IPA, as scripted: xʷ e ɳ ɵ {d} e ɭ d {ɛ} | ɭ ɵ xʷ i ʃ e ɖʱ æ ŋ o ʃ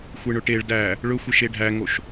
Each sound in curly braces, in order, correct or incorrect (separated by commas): incorrect, incorrect